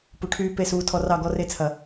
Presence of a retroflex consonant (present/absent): present